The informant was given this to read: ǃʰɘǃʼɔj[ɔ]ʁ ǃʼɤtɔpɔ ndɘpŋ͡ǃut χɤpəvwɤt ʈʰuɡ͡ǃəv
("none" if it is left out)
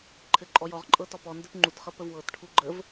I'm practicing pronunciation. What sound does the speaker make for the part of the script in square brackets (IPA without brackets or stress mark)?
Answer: ɔ